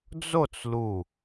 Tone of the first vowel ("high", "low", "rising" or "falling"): falling